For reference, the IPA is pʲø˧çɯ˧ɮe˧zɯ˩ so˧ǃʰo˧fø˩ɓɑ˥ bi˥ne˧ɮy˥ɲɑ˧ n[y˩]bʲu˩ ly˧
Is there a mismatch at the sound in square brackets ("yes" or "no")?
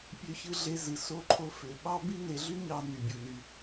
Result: no